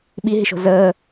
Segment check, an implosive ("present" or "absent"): present